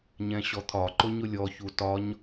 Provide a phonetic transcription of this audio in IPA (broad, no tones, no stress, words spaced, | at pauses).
ɲɛ̃ɕɔt̪ʰɒ ǃʊɲʊlʲɔ çutɒɲ